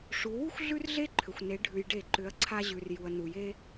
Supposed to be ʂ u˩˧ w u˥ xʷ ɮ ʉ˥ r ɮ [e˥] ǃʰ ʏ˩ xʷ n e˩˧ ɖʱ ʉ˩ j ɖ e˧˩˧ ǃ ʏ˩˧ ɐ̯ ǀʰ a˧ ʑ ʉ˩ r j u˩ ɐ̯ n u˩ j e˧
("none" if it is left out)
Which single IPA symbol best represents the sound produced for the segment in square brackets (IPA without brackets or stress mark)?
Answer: e˥